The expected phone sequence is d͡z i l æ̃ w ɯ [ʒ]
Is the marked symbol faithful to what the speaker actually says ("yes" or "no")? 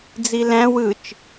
no